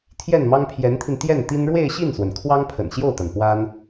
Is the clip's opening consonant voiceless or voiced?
voiceless